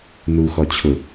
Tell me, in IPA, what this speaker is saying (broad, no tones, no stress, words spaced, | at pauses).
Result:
nu xɔt͡ɕʰʊ